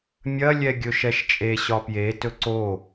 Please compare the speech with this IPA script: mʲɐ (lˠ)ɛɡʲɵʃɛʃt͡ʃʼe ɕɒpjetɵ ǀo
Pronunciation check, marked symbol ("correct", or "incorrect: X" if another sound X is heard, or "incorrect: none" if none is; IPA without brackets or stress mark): incorrect: lʲ